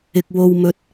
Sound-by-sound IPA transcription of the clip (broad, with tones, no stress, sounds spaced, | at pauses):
ɪ˨ k̚ w o˨ w m ɵ˧ t̚